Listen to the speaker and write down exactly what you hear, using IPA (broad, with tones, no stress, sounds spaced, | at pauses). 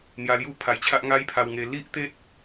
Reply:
n̪ j a˧ l j u˥˧ pʰ a˧ j t͡ɕʰ a˦ ʔ ŋ a˦ j pʰ a˧ w ŋ e˧ l i˦ ʔ t̪ e˦ t̚